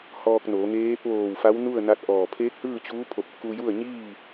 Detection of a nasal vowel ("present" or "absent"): absent